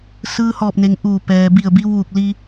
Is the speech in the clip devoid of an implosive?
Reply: yes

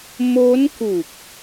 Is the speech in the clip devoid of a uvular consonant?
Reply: yes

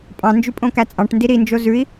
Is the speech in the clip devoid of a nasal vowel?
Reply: no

